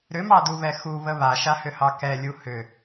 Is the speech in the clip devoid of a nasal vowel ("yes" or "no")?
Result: yes